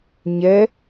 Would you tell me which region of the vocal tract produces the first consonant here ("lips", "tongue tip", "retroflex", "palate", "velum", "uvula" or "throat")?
palate